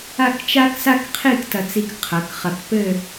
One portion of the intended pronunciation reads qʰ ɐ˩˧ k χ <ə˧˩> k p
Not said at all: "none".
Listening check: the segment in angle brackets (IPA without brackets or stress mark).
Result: ɐ˧˩